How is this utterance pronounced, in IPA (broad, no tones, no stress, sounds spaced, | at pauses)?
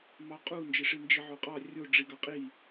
m ɑ qʼ u n d͡ʒ e ʂ i n d͡ʒ i ʕ o qʼ ɑ rʲ o ɖ͡ʐ i ɡ ɑ qʼ i